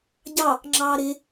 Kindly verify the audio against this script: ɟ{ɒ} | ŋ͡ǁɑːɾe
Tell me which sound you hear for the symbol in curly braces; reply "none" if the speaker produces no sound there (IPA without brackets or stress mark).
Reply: ɑ